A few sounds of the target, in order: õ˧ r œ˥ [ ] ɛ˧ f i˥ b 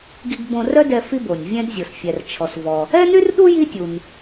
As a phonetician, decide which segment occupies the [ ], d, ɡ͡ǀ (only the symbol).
d